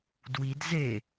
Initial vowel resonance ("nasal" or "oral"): oral